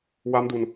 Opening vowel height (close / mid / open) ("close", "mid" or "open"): open